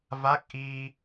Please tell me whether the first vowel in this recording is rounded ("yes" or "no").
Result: no